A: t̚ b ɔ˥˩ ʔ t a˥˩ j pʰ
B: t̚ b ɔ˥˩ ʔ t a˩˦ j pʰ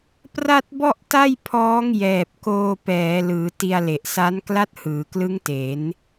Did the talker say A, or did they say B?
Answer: A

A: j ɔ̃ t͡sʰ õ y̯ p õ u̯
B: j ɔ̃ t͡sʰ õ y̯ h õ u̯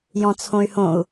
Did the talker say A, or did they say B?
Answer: B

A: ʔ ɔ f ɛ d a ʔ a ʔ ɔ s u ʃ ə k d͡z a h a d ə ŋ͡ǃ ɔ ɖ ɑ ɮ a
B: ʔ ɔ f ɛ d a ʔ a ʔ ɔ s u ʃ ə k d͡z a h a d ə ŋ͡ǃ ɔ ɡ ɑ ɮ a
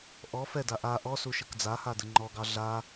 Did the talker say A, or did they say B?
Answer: B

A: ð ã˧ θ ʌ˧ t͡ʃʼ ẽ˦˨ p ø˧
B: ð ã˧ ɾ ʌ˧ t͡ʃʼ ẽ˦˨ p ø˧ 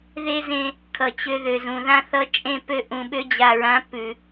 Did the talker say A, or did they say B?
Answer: A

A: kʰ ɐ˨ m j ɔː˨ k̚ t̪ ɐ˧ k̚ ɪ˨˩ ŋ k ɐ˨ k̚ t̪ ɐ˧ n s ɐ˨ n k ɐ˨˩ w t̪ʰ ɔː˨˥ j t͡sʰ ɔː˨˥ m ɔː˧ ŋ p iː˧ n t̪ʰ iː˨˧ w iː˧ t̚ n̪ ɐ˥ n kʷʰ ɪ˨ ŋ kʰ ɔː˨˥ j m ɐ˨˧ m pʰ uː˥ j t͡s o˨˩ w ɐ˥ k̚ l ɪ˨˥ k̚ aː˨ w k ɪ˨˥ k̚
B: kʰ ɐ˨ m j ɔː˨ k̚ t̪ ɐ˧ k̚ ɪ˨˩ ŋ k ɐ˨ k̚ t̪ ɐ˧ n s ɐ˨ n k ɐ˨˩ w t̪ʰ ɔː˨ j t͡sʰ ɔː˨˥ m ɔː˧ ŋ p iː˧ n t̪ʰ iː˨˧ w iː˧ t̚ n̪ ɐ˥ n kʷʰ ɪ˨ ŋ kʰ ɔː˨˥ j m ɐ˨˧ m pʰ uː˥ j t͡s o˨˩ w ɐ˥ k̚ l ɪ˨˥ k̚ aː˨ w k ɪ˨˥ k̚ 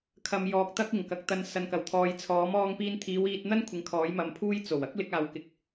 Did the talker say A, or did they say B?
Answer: B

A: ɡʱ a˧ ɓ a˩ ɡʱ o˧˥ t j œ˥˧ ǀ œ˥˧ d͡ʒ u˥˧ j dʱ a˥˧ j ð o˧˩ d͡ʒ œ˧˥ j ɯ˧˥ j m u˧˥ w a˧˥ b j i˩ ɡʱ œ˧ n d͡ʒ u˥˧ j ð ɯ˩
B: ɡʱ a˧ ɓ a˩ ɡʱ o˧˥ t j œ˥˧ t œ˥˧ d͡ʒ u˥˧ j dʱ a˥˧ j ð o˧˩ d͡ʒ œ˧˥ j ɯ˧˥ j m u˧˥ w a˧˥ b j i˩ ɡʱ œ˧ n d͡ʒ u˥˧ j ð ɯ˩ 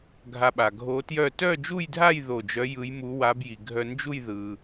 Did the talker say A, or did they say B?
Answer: B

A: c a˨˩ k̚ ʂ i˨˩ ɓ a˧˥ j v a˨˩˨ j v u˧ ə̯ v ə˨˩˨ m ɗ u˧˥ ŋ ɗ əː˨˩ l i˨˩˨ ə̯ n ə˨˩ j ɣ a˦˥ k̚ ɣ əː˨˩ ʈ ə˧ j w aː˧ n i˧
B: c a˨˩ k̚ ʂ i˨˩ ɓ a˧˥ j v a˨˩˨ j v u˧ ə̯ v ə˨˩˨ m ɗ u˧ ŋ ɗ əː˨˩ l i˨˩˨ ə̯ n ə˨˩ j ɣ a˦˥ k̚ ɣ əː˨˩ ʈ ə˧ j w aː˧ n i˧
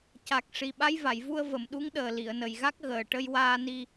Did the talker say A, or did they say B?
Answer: A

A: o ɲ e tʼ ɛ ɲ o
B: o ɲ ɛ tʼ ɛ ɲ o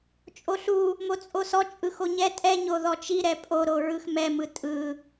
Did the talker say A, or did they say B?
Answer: B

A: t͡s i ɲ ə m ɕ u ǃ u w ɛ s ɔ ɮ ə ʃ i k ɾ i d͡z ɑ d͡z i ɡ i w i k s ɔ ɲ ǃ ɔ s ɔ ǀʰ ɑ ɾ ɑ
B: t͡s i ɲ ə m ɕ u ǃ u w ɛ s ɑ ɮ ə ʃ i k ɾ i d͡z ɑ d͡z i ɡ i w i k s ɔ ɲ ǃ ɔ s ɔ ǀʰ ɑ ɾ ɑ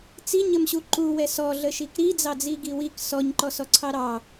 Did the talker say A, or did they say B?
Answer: A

